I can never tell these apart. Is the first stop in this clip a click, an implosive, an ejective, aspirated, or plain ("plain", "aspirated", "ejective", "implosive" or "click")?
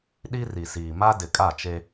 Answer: implosive